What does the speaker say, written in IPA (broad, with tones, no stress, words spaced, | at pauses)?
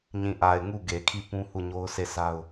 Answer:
ɲĩ˨ʔa˨ɪ̯ ŋu˦˨ ɡe˨kʰi˦˨pũ˦ hu˦˨ɲo˦ʊ̯se˦˨sa˦ʊ̯